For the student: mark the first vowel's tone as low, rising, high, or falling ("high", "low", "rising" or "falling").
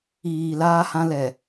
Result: low